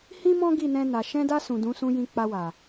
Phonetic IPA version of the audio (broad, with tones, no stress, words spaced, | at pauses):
hĩ˦mɔ̃˦ ɡi˦˨nɛ̃˧na˨ ʃɛ̃˧da˧ sũ˨dũ˨˦sũ˧jĩ˧ k͡pa˧wa˨